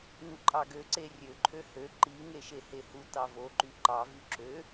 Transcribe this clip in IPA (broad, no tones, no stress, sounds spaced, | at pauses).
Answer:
n u ǃʼ ɑ ɡ ø ǀ e rʲ ø ǃʰ ø h ø ǃ i ŋ e ʃ e h e h u t ɑ v o ǃ y ǃ ɑ v y ǁ ø